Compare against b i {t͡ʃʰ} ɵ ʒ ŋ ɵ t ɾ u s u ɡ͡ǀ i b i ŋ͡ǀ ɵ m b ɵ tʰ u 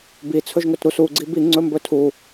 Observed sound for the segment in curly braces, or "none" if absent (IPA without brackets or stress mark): t͡sʰ